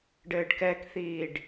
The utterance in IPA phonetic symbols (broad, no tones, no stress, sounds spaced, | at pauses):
ɖ ɘː ɖ k ɛ k θ iː ɖ